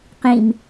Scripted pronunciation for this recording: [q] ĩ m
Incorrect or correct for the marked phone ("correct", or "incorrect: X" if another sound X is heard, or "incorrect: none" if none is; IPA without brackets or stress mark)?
correct